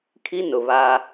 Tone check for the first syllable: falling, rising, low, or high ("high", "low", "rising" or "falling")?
high